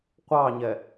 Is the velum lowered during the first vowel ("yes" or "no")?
no